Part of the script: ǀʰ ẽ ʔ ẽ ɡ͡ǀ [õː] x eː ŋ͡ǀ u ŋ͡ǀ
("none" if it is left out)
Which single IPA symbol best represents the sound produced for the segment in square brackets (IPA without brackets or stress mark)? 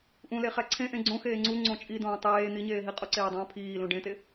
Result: õ